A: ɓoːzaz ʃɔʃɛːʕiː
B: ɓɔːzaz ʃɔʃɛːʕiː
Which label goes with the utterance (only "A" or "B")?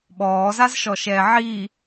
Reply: B